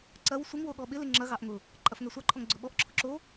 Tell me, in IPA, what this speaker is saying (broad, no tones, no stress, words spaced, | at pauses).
ǀɐw sʷɪŋwo ɠɔɓɪlɪ ŋ͡ǁɐɣɑʔ ŋʊ | ǃʼɐfŋɛsʷɑǃʰɔŋ ɡ͡ǀʊɓɔʔǁʰʊ ǁo